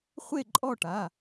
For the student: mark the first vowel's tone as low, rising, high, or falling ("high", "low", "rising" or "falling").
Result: falling